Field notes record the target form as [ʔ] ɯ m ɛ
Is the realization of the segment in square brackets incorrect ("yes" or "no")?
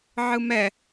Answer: yes